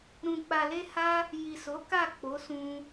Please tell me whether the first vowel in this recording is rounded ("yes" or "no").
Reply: yes